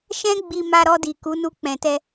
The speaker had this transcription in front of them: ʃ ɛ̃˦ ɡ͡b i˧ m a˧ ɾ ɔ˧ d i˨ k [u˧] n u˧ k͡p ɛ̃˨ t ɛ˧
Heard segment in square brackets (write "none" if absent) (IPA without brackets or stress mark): u˨˦